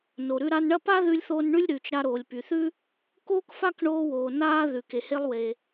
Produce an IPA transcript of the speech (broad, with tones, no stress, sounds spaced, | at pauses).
n o˩ ɾ ʉ˧ ɾ a˧ n ɳ ɐ˥ p a˥ ð ʉ˧ lʲ θ o˧ n ɳ ʉ˥ lʲ ɾ ʉː˩ t͡ʃ ɾ a˧ ɾ oː˩ lʲ p y˩ θ ʉ˥ | k oː˥ k f a˥ k ɳ oː˧ w oː˩ n aː˧ ð ʉ˩ k e˩ h e˧ lˠ w e˩